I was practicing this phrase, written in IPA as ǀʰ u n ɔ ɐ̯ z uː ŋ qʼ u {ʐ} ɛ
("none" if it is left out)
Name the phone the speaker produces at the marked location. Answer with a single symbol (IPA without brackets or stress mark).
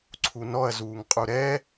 ɾ